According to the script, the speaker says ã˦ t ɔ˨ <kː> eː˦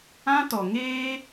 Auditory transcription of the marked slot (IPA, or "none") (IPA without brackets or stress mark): ŋ